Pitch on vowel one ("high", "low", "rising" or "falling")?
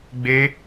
high